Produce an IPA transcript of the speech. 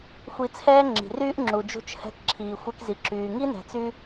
xʷ i˧ t͡sʰ ɛː˥ ŋ͡ǁ i̤˩ r yː˥ ʔ ŋ͡ǁ u˩ d͡ʒ ṳ˧ t͡ʃ h ɛ̤˧ k ǁʰ iː˩ xʷ ɛ˧ k z i˩ ǁ yː˩ ŋ i˥ n ɛ̤˩ t͡s y˧

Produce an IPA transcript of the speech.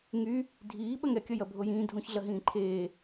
ŋ y | dʱ iː ɓ ɐ ŋ ɛ kʲ ɐ j ɐ bʱ o j ĩː dʱ õ ç ɮ ɐ ɦ ĩː ǃʰ eː

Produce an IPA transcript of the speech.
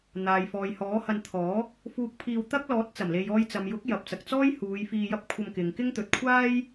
n̪ aː˨ j f ɔː˨ j h ɔː˨˥ h ɐ˧ n t̪ʰ ɔː˨˥ | f uː˧ k̚ pʰ iː˧ w t̪ ɐ˥ k̚ l ɔː˨˥ t̚ t͡s ɐ˨˩ m l e˨ j ɔː˧ j t͡s ɐ˨ m j ʊ˨˥ k̚ j ɐ˨ p̚ t͡s ɐ˨ k̚ t͡s ɔː˥ j h uː˨˧ j f iː˧ j ɐ˥ p̚ kʷʰ ɐ˧ m k ɪ˨ ŋ k ɪ˥ ŋ t̪ ɵ˨ t̚ kʷʰ aː˥ j

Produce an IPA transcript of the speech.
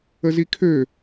ə z i kʰ ø

